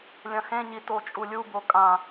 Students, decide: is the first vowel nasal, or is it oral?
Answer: nasal